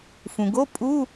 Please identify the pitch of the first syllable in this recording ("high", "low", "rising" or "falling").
low